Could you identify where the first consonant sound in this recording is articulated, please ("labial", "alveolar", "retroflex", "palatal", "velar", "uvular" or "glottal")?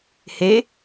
glottal